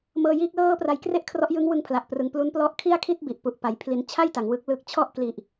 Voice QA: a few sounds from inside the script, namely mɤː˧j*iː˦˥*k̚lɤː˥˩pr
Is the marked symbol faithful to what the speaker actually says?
yes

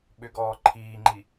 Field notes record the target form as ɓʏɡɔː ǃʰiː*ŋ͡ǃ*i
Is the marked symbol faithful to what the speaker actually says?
yes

